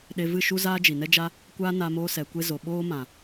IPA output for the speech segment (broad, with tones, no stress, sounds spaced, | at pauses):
ɗ e˧ v ɨ˦˨ ʃ u˦ z aː˦ d͡ʒ i˨ n ɛ˦ d͡ʒ a˦ | kʷ aː˦ n a˧ m oː˧ s ɛ˨ kʷ e˧ z o˨ ɓ oː˦ m ã˨